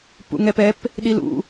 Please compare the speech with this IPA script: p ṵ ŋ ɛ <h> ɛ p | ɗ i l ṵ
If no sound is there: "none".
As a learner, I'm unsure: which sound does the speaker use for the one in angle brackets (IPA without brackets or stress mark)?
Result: p